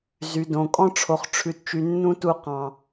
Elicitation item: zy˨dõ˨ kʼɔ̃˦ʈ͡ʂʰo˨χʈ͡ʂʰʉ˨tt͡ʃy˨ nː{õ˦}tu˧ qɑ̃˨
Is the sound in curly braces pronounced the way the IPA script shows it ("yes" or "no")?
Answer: no